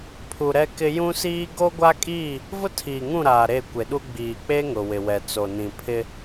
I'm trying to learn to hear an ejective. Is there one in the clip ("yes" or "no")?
yes